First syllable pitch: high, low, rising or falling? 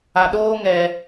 low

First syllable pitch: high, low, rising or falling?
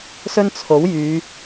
high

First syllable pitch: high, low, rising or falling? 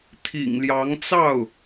low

